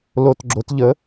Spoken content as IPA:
l o˨˩ t ɡ͡ǁ o˩˧ t ʎ ə˩˥

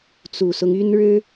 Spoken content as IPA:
t͡s u˨˩ s ʊ˦ ŋ y˥ n ɻ ɻ̩˥

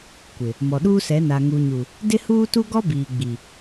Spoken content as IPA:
kʷ ɪ˨ | m ɔ˨ ɗ uː˦ s ɛ˨˦ n a˨ ŋ u˨ ɲ u˨ | d ɪ˦ h uː˦ t u˦ ɡ ɔ˦ b iː˨ ɡ͡b i˨

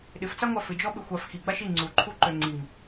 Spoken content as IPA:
ɗ ɪ f t͡s a ŋʷ a f ɪ d͡ʒ ɔ ɓ ɪ xʷ a f x i ɡ͡b a ʃ i ŋ͡ǀ u ǃʰ u ǃ ø ŋ͡ǀ i ŋ

